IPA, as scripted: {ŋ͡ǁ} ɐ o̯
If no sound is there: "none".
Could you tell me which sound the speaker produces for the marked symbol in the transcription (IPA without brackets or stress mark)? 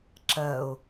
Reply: ǁ